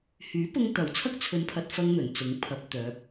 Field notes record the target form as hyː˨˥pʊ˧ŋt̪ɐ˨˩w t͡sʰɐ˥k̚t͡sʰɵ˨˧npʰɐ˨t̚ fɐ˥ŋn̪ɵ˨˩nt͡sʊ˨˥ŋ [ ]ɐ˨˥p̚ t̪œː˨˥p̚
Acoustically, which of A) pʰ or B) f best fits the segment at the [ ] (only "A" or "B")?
A